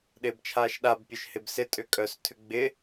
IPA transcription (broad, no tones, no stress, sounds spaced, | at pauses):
ɗ ɪː b t͡ʃʰ aː ʃ ɗ a b pʲ œ ʃ h ɪ b s ɪ tʼ ʏ kʼ œ s tʰ ʏ ɡ͡b ɪ